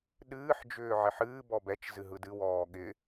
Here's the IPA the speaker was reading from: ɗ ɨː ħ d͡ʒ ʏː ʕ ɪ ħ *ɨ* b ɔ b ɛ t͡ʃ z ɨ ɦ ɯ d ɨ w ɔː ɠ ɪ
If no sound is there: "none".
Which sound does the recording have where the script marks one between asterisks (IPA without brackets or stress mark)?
ɨː